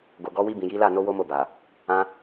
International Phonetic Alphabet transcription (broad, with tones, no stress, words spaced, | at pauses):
ɡo˨ɡɔ˨˦wi˧bĩ˨ ji˨˦la˦˨no˨˦ wo˦mo˦˨ba˨ | ã˧